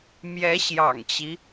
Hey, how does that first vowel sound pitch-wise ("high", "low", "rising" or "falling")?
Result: rising